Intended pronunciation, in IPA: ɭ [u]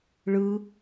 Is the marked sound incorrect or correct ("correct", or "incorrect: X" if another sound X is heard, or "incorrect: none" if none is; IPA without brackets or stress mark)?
incorrect: ɯ